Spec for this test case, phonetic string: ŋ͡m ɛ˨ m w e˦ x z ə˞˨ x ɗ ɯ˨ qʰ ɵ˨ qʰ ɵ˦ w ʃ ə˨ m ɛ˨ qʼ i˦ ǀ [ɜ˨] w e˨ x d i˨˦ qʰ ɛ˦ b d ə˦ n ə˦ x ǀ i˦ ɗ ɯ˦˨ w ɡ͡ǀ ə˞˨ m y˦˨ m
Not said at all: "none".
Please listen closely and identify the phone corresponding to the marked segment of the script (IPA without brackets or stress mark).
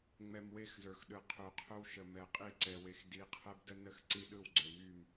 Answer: ɛ˨